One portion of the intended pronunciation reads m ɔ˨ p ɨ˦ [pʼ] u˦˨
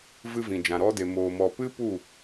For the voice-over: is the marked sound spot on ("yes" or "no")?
no